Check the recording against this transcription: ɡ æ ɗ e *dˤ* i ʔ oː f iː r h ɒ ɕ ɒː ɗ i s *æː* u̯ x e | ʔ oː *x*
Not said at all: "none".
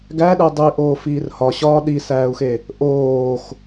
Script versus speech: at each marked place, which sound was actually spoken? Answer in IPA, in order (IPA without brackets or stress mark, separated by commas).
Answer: dˤ, æː, x